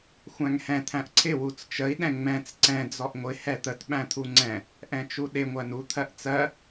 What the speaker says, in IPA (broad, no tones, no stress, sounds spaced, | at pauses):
xʷ æ̃ ŋ h ɛ̃ t̪ʰ æ̃ ʔ ǀʰ ɪ w u t͡s t͡ʃ ə i̯ ɗ ɛ̃ ŋ͡m ɛ̃ t͡s ǀ ɛ̃ d͡z ɔ ʔ ŋʷ ɪ h ɛ t̪ ə t ɓ æ̃ t̪ʰ u ŋ͡ǀ ɛ̃ | ʔ ɛ̃ t͡ʃ u ɗ ɪ ŋʷ æ n u t̪ʰ ɜ ʔ t͡s ɜ